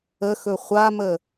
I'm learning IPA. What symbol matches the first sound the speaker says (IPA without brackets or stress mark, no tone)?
ə